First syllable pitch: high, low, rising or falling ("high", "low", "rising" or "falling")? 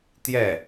falling